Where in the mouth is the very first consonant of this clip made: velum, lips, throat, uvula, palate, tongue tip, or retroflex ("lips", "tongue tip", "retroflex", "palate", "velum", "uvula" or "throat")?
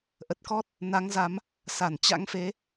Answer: throat